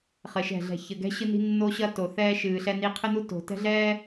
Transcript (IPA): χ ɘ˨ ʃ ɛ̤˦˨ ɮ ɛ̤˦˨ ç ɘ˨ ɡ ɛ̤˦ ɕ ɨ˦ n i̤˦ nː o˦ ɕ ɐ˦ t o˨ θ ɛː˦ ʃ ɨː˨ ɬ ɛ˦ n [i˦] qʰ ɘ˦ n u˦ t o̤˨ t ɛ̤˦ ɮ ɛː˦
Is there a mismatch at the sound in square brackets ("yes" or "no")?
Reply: no